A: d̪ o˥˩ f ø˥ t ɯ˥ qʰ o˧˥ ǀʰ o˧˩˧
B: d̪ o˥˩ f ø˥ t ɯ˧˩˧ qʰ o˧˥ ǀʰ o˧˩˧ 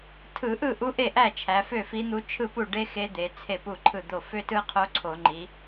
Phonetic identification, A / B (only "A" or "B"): A